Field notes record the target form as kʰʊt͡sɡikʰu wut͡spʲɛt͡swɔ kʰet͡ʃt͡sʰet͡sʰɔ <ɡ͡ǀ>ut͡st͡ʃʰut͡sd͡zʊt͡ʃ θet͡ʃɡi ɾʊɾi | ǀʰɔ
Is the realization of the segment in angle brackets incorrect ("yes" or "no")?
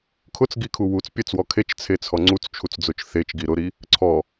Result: yes